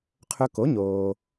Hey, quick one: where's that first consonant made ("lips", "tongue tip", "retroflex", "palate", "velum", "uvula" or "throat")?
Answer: uvula